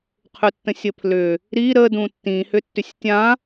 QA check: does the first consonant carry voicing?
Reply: no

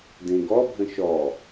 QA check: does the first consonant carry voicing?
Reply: yes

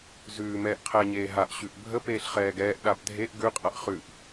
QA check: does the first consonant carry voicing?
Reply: yes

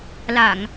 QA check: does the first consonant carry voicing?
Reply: yes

